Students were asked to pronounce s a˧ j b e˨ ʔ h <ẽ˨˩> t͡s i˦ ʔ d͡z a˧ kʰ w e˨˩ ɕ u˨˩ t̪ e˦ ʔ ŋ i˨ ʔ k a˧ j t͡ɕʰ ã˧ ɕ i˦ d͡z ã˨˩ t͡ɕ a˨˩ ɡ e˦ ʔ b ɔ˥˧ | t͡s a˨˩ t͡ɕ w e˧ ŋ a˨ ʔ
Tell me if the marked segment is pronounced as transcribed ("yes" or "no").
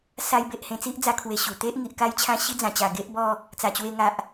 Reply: no